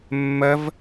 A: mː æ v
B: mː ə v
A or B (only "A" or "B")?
B